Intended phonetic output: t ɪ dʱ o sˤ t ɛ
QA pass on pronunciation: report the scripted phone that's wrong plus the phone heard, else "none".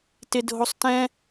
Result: ɛ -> ɛ̃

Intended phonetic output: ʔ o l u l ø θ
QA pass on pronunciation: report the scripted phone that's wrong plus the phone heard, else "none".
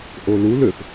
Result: none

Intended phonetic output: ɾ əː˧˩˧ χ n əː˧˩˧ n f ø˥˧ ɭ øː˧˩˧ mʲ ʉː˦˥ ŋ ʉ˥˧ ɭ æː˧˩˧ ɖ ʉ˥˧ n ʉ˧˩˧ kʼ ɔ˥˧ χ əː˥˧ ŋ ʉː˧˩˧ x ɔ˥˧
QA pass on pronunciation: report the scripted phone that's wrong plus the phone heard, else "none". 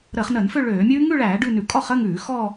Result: none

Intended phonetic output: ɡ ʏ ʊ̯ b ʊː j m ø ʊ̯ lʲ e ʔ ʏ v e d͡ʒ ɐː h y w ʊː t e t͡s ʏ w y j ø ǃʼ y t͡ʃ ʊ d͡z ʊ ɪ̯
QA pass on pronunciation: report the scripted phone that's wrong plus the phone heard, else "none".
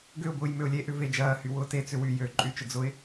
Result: none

